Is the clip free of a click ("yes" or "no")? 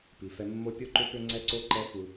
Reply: no